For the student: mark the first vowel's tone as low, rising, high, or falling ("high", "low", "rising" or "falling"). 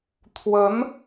rising